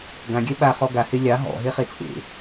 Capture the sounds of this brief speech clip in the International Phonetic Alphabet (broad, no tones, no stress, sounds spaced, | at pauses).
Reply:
ɡ ã ɡʲ ɛ ɓ a χ ɔ ɡ a h e lʲ ɑ ɦ ɔ̰ ɦ e χ e t͡sʼ ḛ